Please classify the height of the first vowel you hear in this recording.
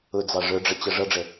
high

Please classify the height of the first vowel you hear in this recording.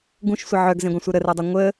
high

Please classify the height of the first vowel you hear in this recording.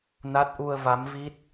low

